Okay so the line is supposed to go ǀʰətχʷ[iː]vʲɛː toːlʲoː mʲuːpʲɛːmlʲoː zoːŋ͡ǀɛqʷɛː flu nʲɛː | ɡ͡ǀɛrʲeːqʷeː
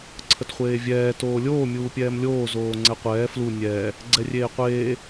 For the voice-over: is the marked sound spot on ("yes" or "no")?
no